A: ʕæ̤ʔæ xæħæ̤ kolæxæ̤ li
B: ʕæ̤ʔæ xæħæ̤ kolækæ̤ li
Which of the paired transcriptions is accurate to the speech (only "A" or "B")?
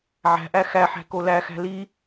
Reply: A